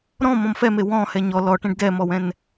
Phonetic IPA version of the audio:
ɾ ɔ̃ m ɔ̃ m f ɛ m e w ɔ̃ h ɛ ɲ ɔ l ɔ ʈ ẽ ɖ d ɛ m ɔ w ɛ̃ n

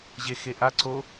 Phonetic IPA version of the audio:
ʑ e x e ʔ a ǀ o

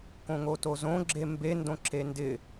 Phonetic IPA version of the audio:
k õ ŋ o t o z õ ɡ͡ǁ e m b e n d õ ǁ e n d ɪ

